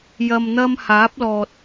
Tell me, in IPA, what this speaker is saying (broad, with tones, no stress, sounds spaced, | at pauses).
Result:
j ɐ˧ m n̪ ɐ˥ m h aː˨˥ p̚ l ɔː˨ t̚